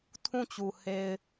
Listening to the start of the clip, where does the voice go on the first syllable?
falling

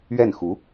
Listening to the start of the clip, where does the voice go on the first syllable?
falling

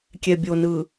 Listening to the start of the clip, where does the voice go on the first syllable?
low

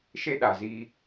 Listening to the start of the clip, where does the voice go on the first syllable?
high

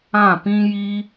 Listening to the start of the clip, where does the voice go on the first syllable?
falling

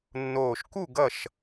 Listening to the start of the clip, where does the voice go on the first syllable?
low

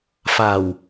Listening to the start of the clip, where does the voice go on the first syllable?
low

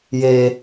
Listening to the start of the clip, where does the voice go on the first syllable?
low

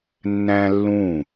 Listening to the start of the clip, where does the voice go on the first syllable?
high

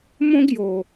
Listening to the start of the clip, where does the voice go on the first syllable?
high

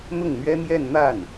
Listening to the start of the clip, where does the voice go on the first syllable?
falling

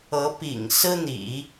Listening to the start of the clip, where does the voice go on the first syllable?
rising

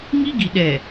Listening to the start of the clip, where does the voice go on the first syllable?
high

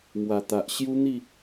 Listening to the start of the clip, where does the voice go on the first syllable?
low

